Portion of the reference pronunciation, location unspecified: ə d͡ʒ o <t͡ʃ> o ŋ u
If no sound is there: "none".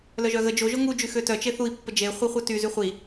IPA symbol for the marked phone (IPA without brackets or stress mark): ʒ